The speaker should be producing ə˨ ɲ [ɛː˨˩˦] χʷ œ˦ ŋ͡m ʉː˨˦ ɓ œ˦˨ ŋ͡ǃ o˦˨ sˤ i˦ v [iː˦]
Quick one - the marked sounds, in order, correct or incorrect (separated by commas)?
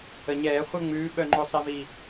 correct, incorrect